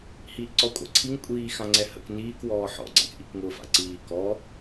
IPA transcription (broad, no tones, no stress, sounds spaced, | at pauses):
h iː ʔ ǀ ɔ kʷʼ a̰ ǀʰ i ŋ kʷʼ iː x ã ŋ͡ǀ ɛ h ə̰ k n iː k w ɔː ħ ɔ̰ ɡ͡ǀ a̰ k ʔ i k ŋ ʊː f a̰ ǀ iː k ɔ